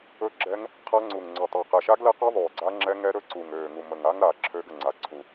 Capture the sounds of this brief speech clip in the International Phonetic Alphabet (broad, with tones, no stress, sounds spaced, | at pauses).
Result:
ɵ˦˥ ɡ͡ǁ ɛ˦˥ ŋ | qʰ a˦˥ ŋ͡ǀ u˨˩ ŋ ŋ͡ǀ ɵ˨˩ tˤ ə˞˨˩ q ɛ˨˩ ʃ a˦˥ ɡ l ɛ˦˥ q ɔ˦˥ ðˤ øː˨˩ ɡ͡ǀ a˦˥ ŋ͡ǁ ɛ˦˥ ŋ ɛ˦˥ ɾ ɵ˦˥ ǀ u˨˩ ŋ øː˨˩ ŋ u˨˩ m ə˨˩ ŋ a˦˥ ŋ ɾ a˨˩ ǁʰ øː˦˥ ɡ ə˨˩ ŋ͡ǀ a˨˩ ǀʰ u˨˩